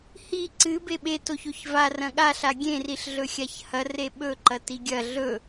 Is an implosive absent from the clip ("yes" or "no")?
no